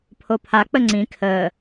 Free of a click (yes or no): no